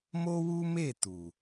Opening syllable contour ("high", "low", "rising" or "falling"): high